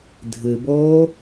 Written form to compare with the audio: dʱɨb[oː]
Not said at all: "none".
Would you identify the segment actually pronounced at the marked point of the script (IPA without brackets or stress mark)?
oː